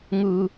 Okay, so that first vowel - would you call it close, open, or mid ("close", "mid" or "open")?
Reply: close